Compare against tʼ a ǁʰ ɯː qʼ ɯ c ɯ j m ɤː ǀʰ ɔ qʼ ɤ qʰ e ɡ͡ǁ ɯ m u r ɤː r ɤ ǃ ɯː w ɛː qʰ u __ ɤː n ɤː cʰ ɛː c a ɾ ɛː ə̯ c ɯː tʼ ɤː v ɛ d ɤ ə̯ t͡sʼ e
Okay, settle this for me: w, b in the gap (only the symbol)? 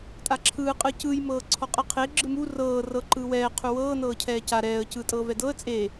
w